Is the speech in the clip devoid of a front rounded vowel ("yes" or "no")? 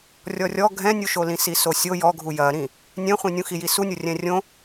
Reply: yes